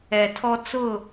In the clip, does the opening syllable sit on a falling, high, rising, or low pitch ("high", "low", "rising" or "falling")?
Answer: low